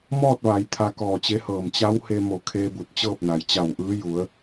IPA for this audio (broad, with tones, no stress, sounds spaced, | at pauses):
m ɔː˥˨ t̚ ʋ a˩˧ j t̪ʰ a˧ k ɔː˧˩ t͡ɕ e˧˥ h ɤː˧˩ m t͡ɕ a˧˥ w h e˧ m o˧˩ kʰ eː˧ b u˧˩ t̚ t͡ɕ ɤː˥˨ p̚ n a˩ j t͡ɕ a˧˩ w ʔ ɯː˧˥ j u˩˧ ə̯